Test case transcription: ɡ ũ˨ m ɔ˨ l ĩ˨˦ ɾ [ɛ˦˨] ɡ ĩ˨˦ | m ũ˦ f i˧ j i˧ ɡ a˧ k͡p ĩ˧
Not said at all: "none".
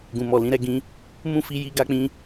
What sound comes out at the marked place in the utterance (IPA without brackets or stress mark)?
ɛ˦˨